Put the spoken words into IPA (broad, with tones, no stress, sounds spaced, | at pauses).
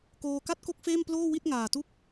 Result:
k oː˧ k a˥˩ t̚ k o˥˩ k̚ f eː˥˩ m p l oː˥˩ w i˥˩ t̚ ŋ aː˨˩ t u˥˩ k̚